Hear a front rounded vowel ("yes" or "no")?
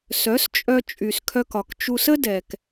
yes